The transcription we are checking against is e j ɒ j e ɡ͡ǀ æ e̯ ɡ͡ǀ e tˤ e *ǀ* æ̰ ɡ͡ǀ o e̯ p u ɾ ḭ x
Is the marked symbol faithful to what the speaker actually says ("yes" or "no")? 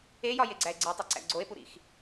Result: yes